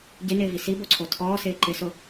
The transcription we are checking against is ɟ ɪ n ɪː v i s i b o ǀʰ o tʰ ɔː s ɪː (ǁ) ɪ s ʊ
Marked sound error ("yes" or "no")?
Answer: yes